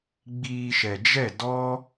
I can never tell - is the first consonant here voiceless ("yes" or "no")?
no